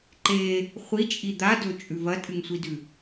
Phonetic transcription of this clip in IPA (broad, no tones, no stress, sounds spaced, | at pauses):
ǃ e | χʷ i t͡ʃʼ i d̪ a d ɵ t͡ʃʼ ʉ v ɐ tʼ ɨ ŋ sʷ i d ʉ